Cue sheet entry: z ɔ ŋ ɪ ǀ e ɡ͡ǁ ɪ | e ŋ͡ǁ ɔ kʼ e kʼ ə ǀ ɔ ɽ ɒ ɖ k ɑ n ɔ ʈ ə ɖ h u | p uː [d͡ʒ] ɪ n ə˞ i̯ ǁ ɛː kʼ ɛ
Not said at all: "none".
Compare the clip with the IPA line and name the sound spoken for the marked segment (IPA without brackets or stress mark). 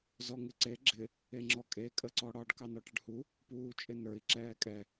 t͡ʃʼ